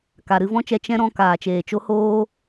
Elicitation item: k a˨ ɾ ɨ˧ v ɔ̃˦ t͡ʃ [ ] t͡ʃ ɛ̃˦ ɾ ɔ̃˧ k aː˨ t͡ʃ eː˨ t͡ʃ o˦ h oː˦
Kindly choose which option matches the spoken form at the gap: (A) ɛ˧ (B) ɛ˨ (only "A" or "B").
A